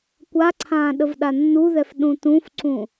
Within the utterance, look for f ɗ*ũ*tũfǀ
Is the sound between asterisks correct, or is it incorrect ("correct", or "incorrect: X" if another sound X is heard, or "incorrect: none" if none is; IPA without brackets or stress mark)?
correct